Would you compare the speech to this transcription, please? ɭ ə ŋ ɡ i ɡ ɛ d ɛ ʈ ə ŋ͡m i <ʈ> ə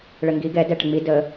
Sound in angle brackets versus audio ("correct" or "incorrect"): incorrect